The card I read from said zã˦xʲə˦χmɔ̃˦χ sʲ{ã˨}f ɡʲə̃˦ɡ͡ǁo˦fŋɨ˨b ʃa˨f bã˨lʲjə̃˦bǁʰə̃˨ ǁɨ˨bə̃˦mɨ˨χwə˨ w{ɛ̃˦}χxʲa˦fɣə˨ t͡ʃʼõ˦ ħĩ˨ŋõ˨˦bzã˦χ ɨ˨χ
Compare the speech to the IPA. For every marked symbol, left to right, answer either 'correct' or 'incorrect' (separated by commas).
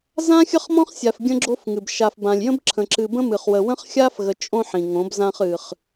incorrect, incorrect